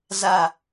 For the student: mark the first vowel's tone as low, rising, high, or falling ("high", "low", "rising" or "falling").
falling